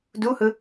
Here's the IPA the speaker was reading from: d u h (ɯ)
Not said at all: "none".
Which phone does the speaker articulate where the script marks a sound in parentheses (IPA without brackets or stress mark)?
ɯ